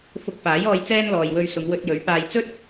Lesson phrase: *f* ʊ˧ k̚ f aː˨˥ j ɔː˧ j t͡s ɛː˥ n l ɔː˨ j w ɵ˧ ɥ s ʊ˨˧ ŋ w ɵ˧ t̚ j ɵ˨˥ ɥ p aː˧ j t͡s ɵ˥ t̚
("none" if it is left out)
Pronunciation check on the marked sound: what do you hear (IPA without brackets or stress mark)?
f